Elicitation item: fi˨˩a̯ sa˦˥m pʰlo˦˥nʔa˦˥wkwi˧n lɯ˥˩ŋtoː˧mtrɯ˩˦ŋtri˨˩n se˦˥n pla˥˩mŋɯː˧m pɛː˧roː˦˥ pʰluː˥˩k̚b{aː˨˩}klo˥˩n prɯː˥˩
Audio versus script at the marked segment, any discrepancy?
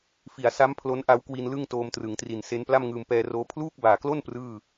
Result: no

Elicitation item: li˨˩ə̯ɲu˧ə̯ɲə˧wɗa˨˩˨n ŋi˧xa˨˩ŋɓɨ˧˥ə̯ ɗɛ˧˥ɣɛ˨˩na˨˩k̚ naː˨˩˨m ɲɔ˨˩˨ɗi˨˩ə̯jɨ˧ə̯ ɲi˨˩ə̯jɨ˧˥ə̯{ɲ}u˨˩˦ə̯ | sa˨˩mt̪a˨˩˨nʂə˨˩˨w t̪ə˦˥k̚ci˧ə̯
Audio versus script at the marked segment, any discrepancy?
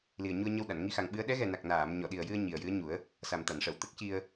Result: no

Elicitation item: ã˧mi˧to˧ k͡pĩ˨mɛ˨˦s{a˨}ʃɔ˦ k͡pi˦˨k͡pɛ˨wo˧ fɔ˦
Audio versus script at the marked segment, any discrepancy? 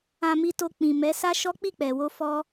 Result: yes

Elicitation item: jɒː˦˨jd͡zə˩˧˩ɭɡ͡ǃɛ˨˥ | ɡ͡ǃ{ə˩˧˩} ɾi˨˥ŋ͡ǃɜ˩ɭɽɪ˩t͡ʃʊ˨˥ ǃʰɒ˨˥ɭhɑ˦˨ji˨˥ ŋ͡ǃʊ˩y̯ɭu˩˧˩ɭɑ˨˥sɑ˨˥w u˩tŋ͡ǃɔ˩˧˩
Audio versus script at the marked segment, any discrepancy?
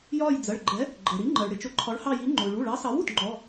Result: yes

